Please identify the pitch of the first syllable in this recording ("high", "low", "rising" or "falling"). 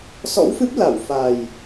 rising